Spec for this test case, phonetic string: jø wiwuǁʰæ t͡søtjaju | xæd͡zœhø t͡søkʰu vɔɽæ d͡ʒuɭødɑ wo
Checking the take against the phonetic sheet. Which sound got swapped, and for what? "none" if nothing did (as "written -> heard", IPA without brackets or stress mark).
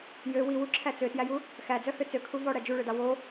a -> æ